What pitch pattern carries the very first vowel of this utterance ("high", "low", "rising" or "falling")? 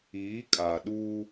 rising